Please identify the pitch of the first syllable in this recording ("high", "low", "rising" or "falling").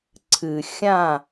low